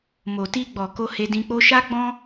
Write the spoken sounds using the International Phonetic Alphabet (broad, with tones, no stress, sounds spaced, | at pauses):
m o˨ t i˧ ɡ͡b ɔ˨ k o˧ h e˧ d ĩ˧ k͡p o˦ ʃ a˦ ɡ͡b ɔ̃˦